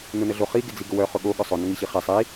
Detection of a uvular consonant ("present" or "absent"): present